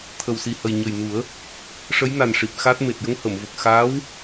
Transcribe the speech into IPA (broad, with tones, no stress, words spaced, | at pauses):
t̪ʰə˨˩wsi˨˩hə˨˩j ɲə˨˩jnu˨˩˦ə̯ | ʂə˧˥jna˨˩n ʂi˨˩p̚xa˦˥t̚ me˨˩t̚jə˧ŋhə˨˩˨mvə˨˩k̚ xaː˧˥w